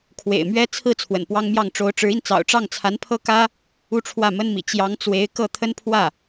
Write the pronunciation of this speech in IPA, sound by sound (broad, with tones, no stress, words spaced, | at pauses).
kʰwḛ˨˩ɪ̯mɥɛ˥ t͡sʰɹ̩˥˩ t͡sʰwə̰˨˩npwɑ˥ŋmjɑ˥˩ŋ ʈ͡ʂo˧˥ʊ̯ʈ͡ʂɻ̩˧˥i˧nt͡sɑ̰˨˩ʊ̯ ʈ͡ʂɑ˥˩ŋt͡sʰa˧˥npʰɤ˥ kä˥ | u˥˧ʈ͡ʂʰwä˥˩mə˥nmḭ˨˩ t͡ɕjɑ˧˥ŋt͡swe˧˥ɪ̯ kɤ˥˩t̪ʰə˥npʰwä˥˩